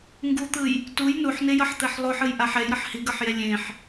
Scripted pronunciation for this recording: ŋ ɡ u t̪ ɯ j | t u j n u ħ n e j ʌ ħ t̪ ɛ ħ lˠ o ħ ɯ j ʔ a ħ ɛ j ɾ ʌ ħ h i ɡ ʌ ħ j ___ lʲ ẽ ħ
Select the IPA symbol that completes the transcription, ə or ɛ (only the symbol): ɛ